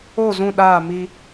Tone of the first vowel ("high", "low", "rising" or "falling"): falling